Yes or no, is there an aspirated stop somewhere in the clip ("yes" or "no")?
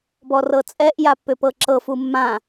no